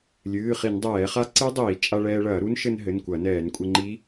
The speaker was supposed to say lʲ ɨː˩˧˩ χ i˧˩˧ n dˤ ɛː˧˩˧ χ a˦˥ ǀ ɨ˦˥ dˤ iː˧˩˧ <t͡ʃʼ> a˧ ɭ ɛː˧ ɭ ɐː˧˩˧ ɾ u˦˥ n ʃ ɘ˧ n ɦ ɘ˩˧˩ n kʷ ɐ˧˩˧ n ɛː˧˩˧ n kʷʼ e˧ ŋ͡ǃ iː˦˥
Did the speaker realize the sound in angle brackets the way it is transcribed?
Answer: yes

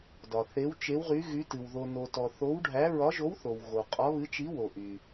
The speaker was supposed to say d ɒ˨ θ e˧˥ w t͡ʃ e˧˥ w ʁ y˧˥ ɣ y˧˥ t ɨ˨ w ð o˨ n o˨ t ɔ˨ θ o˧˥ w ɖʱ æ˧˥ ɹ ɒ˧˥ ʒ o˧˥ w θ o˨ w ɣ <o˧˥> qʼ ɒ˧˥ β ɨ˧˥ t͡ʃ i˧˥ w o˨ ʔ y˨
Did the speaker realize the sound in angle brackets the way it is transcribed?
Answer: no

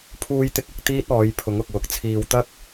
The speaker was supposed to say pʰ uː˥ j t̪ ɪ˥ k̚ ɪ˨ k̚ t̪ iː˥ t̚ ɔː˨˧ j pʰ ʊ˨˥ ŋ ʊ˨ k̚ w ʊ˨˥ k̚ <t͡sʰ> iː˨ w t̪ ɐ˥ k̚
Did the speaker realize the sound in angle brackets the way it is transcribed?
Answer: yes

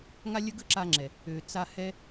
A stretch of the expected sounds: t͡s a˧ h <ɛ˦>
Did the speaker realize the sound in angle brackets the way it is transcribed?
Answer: yes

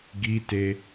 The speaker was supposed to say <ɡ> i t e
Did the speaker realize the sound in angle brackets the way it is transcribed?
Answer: yes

